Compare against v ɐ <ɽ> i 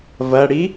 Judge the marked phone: correct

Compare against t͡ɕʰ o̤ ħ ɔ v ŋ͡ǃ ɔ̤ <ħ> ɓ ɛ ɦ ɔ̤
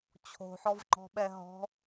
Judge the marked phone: incorrect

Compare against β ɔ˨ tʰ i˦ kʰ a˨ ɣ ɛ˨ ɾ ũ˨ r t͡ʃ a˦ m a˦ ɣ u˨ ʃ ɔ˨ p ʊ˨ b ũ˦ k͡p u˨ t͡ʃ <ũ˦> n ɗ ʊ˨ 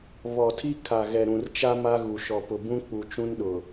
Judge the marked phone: correct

